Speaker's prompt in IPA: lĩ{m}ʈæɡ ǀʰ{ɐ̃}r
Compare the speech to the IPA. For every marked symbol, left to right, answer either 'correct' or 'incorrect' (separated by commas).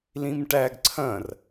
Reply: correct, correct